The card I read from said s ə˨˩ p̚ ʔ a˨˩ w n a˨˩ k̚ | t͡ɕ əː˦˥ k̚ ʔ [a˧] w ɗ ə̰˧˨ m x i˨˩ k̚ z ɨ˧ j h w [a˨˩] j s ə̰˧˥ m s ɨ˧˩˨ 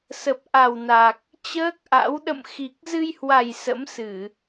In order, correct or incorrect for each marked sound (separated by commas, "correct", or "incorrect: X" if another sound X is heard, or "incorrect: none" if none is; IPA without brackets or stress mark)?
incorrect: a̰˧˥, correct